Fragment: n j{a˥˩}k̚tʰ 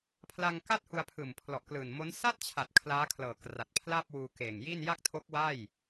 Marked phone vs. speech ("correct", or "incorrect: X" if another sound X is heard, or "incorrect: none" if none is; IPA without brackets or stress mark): correct